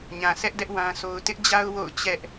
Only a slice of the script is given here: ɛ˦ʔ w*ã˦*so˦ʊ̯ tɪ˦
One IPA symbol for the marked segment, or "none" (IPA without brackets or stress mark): ã˦